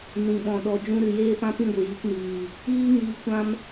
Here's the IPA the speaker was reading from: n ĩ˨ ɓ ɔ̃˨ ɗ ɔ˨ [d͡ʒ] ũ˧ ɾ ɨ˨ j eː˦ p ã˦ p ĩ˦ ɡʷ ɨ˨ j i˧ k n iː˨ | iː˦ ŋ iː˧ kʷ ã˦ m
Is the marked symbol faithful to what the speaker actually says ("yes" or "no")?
yes